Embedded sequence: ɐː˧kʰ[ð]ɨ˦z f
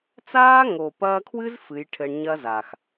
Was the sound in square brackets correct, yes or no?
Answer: no